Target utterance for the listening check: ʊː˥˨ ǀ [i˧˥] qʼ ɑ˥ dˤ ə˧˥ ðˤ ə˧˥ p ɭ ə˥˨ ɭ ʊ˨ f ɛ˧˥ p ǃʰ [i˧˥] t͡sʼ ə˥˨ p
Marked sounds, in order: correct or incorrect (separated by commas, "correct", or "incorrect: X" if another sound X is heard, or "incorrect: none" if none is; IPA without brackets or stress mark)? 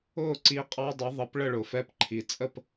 correct, incorrect: i˨